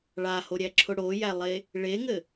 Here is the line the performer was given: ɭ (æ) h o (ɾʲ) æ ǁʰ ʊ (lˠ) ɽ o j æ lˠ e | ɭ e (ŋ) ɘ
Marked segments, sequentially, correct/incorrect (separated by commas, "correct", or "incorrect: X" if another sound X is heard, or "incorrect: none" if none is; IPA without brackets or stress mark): incorrect: a, correct, incorrect: none, correct